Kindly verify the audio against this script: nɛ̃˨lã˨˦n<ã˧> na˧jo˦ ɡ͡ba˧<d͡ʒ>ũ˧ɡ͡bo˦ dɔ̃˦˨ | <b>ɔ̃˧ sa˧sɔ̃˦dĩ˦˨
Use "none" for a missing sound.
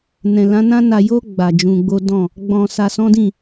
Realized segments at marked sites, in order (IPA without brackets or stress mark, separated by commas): ã˦, d͡ʒ, ɡ͡b